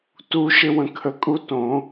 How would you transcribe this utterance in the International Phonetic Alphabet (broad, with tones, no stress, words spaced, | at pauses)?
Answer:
tu˦ʃɪ˦ wə̃˧kʰə˧kʼu˦ tõ˨˦